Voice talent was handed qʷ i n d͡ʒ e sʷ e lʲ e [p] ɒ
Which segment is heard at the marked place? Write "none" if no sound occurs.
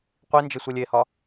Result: h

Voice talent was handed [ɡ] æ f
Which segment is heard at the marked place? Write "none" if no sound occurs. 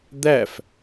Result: d̪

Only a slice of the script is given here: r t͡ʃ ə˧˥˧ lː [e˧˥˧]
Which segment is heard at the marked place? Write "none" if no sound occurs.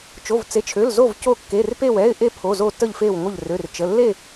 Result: e˥˧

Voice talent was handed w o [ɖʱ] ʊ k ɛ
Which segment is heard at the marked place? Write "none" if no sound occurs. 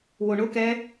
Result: ɳ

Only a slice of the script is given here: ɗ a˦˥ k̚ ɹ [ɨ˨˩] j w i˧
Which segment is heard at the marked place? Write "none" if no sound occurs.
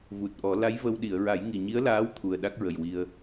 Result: ə˨˩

